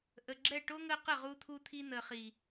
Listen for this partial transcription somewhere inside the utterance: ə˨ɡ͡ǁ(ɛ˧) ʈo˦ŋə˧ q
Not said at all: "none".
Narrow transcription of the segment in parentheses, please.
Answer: ɛ˦˨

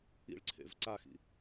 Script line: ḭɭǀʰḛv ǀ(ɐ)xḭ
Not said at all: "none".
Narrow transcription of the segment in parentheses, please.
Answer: a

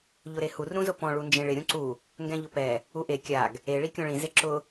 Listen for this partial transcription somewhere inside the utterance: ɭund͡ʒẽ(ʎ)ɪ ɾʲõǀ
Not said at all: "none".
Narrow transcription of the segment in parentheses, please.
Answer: ɭ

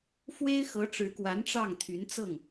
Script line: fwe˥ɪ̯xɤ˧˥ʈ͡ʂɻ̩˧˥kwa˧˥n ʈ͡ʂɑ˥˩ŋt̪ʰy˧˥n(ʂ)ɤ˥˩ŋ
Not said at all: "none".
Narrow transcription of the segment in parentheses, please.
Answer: t͡s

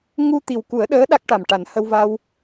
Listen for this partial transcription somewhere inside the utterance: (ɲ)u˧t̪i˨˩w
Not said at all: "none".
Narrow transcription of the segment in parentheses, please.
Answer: ŋ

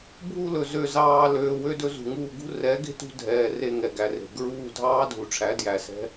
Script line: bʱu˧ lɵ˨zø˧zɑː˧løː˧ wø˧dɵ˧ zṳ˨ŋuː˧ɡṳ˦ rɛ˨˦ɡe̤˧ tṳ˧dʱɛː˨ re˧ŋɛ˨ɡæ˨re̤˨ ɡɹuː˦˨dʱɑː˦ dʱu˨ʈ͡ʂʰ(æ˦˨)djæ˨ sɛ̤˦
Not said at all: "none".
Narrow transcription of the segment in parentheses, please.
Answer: æ˨˦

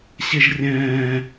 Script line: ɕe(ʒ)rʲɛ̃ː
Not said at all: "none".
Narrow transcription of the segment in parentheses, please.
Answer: ʒ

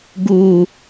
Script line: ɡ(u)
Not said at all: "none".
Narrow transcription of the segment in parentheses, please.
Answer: u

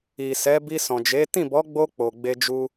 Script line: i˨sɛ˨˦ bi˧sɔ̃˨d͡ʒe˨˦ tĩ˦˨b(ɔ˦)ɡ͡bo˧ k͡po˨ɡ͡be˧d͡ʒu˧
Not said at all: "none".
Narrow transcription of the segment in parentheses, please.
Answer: ɔ˨˦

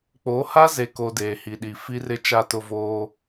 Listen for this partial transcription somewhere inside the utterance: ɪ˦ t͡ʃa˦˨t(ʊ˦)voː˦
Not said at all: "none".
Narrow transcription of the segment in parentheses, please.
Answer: ʊ˦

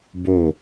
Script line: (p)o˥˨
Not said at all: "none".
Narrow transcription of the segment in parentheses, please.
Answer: b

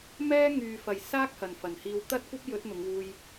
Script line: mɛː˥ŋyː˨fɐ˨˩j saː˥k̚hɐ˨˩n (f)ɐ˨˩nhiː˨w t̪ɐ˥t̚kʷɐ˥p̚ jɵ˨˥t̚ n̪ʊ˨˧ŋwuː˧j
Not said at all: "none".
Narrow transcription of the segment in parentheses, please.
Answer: f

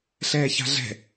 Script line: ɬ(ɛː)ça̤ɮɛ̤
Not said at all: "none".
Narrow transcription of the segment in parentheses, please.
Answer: ɛː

